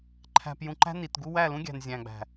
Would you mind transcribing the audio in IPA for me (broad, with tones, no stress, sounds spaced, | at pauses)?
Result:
ǃʰ æ̤˨ p j ũ˨ ǃ æ̤˦ n i˨ t ɡ u˦ w æ˦˨ l ũ˦ ɡʲ æ̤˨ n zʲ æ̃˨ ɡ͡b æ̤˨